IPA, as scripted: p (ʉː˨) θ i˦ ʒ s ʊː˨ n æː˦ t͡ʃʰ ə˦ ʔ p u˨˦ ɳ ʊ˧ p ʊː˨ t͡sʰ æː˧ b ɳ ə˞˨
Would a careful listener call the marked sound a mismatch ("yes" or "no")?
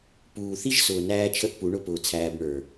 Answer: yes